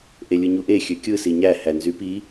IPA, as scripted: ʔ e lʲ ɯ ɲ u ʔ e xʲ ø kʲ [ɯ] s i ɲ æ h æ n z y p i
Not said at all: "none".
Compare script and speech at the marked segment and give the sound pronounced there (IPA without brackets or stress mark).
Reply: ɯ